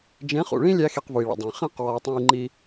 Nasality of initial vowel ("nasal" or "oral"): nasal